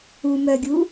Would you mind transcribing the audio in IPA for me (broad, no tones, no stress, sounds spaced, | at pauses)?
u m œ ɡʲ u